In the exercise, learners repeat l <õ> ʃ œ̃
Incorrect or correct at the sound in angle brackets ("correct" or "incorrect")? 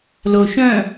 incorrect